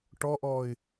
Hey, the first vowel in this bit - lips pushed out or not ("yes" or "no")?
yes